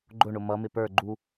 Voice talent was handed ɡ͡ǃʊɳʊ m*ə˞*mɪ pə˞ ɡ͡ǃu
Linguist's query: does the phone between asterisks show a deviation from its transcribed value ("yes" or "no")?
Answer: yes